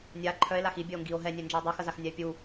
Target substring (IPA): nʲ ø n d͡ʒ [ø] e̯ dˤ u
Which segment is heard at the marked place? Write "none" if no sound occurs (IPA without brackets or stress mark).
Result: ɛ